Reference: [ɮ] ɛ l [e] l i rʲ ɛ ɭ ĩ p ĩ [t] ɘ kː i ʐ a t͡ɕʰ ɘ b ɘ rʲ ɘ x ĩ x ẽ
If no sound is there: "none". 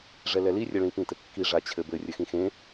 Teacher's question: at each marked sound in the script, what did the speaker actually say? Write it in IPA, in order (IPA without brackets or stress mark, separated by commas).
ʐ, ɛ, t